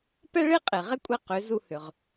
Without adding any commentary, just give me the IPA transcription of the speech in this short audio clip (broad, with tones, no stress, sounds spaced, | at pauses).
p ɛ˥ ɭ e˥ qʼ e˩ ʁ ɛ˥ kʷʼ ɛ˥˩ q ʏ˩˥ z u˧ h ʏ˩ ʁ